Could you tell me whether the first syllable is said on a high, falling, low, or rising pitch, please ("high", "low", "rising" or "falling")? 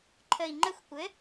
low